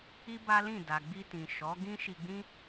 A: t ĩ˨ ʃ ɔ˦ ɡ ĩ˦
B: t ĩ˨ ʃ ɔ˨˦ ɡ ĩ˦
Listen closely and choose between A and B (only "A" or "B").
B